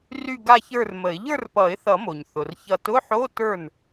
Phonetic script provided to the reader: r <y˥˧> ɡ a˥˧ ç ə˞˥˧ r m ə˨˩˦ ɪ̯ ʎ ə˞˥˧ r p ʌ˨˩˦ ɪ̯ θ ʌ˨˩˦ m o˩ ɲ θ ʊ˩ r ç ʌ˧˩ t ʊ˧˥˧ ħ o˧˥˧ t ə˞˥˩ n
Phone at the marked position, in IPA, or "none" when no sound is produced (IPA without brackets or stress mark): y˥˧